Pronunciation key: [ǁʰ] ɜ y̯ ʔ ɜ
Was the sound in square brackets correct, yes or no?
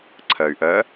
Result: no